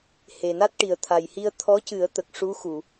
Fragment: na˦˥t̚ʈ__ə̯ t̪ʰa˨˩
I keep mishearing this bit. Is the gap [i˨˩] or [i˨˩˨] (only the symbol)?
i˨˩